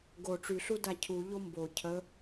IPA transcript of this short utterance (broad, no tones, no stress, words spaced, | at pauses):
ɡo ʈ͡ʂyɬu dacʰu ʎombo cʰə